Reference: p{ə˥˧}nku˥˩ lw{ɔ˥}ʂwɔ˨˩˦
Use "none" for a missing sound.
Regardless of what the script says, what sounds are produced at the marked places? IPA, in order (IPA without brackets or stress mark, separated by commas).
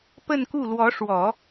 ə˥˧, ɔ˧˥